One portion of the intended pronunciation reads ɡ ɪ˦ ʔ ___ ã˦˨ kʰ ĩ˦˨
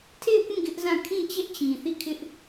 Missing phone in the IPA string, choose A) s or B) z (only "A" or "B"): B